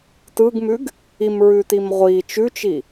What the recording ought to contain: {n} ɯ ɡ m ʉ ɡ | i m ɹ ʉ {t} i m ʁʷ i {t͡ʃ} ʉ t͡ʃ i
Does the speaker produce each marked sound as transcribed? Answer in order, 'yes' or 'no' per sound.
no, yes, yes

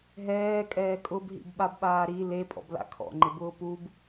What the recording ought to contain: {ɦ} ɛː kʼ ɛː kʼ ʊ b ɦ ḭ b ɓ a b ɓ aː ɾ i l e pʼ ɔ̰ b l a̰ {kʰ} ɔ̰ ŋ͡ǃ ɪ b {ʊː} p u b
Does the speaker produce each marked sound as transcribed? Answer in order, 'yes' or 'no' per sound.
yes, yes, yes

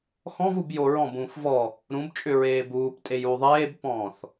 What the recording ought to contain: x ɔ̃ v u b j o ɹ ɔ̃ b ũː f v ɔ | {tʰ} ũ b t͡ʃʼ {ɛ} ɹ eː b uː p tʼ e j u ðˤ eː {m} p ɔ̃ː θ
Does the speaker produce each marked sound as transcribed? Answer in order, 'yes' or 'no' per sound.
no, no, no

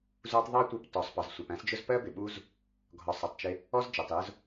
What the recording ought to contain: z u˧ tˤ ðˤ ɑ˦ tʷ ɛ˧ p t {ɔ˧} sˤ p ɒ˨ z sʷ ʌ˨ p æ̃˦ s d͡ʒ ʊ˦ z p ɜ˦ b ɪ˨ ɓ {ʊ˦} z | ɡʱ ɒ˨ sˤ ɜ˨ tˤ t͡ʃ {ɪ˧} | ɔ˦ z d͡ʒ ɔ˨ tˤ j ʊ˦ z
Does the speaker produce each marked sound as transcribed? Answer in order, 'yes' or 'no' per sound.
no, no, yes

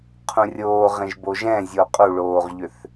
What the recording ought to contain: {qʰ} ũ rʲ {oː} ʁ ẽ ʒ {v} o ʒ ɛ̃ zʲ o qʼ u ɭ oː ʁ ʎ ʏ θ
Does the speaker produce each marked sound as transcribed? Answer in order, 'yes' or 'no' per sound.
yes, yes, no

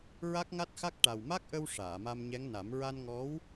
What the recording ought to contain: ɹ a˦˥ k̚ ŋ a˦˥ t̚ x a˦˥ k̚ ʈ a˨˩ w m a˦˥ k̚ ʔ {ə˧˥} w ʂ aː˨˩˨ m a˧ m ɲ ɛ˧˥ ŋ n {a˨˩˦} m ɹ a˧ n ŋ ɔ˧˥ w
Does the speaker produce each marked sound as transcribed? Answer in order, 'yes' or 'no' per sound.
no, yes

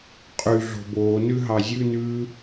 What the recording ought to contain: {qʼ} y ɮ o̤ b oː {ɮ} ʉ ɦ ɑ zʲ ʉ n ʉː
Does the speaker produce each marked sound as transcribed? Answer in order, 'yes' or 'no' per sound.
yes, no

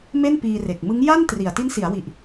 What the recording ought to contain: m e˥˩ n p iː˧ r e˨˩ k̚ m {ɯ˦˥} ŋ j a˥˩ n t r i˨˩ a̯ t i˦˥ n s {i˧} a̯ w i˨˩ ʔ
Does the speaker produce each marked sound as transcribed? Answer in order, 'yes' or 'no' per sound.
yes, no

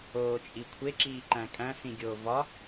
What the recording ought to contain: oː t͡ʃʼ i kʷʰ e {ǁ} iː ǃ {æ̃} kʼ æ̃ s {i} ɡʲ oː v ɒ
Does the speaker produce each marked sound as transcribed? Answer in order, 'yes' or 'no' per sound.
yes, yes, no

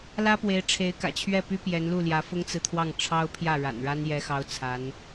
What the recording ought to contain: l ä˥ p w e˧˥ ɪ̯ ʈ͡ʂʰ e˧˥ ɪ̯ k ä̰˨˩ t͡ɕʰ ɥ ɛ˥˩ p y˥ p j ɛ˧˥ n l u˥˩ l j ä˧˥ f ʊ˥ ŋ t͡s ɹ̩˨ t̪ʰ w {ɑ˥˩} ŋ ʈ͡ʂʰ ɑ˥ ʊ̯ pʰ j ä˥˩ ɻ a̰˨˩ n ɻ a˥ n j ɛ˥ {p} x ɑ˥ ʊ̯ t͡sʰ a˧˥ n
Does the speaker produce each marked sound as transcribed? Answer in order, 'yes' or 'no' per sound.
yes, no

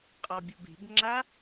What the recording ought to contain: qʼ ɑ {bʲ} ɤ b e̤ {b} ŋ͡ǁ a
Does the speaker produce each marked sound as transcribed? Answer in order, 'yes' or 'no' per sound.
yes, yes

